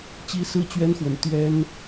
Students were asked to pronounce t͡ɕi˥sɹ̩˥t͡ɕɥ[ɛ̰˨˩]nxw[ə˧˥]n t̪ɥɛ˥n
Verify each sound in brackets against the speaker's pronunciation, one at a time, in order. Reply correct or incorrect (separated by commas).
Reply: incorrect, correct